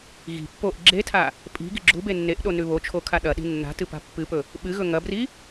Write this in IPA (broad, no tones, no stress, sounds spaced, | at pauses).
ɣ i̤ pː o ʔ ɡ͡ǁ e tʰ a | pʼ i̤ ɡ i̤ ɡ͡ǁ u b e nː e ʔ ɗ o n ʉ β o t͡ʃʰ o kʰ a ɗ ɐ ɗ i̤ nː a̤ t ɨ p a̤ pː ɨ p ɵ | ɓ ɨ ɣ ɵ ŋ ɐ b r i